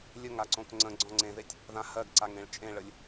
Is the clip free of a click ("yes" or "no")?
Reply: no